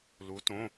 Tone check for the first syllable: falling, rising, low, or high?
rising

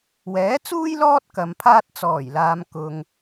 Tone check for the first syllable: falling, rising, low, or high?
rising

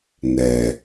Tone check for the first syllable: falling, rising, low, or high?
low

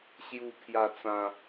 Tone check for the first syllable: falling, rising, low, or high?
low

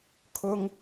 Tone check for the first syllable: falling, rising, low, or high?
high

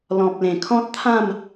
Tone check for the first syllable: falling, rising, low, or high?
low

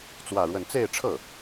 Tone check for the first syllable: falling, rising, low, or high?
falling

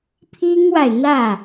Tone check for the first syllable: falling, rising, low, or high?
high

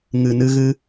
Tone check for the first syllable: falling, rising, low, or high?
low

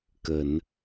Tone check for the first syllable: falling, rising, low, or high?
low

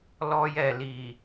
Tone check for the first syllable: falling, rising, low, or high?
high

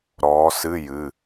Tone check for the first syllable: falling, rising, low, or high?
rising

